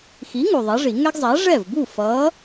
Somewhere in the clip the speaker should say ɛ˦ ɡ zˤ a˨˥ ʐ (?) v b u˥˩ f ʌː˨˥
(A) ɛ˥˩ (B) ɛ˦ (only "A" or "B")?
A